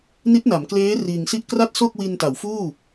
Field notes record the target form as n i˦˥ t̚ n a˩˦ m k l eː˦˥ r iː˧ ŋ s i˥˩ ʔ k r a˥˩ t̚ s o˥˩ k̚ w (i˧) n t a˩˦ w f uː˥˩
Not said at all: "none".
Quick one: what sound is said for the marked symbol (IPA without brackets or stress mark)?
i˧